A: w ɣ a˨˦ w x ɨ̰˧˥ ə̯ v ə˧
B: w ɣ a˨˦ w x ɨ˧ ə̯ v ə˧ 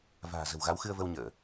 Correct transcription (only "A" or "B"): B